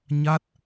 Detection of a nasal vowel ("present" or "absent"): absent